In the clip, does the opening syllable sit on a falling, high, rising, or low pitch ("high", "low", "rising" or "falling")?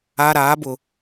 low